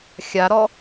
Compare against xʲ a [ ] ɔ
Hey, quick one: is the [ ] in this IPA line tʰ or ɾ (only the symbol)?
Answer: ɾ